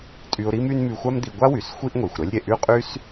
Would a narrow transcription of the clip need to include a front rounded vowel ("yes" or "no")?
yes